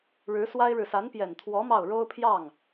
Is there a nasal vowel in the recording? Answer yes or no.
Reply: no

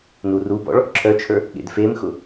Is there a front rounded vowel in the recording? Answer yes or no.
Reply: yes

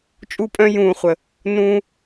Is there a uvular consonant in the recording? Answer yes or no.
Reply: yes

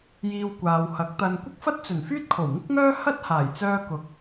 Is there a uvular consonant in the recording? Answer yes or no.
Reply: no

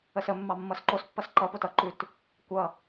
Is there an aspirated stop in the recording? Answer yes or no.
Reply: no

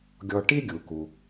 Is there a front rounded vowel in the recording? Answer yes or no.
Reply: no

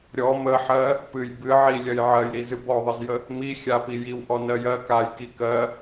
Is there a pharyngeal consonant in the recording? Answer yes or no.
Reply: yes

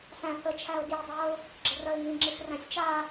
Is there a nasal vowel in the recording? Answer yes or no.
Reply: yes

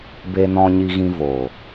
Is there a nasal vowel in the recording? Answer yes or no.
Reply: yes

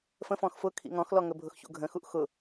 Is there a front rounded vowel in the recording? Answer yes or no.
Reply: no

